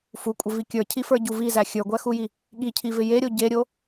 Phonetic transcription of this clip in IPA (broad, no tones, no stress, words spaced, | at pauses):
fukʷʼɪvi kʲə˞cʰifə˞ɟu vizæ xʲə˞ɡʷæxuji | ɠicʰivɪ jeɾʲo ɟeɾʲo